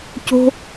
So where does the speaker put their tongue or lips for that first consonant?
palate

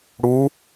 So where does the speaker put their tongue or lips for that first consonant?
retroflex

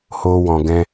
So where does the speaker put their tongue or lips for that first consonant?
throat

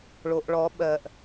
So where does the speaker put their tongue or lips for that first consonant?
retroflex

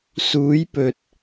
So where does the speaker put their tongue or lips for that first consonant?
tongue tip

